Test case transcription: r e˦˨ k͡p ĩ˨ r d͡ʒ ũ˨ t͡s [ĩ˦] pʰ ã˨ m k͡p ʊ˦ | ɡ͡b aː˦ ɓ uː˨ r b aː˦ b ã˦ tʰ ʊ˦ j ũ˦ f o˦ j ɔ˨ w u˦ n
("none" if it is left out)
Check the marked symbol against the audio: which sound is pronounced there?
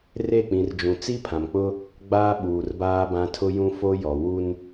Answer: i˦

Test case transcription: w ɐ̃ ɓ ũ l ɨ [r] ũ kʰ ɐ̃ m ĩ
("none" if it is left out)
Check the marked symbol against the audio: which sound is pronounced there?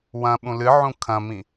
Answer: ʕ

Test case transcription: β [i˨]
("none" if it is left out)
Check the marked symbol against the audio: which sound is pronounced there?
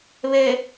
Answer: e˨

